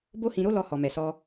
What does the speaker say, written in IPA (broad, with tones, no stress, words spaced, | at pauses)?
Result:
bo˦hĩ˧ɾo˦lɔ˧ hɔ˨mɛ˨sɔ˧